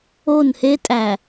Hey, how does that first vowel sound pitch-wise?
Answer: falling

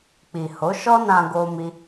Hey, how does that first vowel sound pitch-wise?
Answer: low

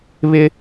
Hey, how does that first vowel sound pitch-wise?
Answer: high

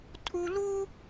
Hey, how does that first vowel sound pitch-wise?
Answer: high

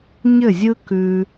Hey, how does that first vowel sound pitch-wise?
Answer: falling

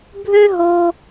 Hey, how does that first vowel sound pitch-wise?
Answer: high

